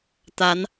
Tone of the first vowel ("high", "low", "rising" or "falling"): rising